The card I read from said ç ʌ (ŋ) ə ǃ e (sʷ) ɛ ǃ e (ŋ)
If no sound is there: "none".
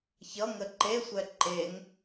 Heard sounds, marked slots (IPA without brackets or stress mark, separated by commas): ŋ, sʷ, ŋ